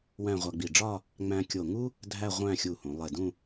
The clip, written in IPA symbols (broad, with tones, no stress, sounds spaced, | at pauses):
w æ̃˥˧ ʁʷ æ˧ ɡ͡b i˧˩ ɖ͡ʐ ɒ˥˧ | ŋ͡m æ̃˧ kʲ o˧˩ ŋ u˥ | dʱ æ˥˧ ʁʷ æ̃˥˧ xʲ u˧˩ h ũ˩˧ lˠ e˧˩ d ũ˥˧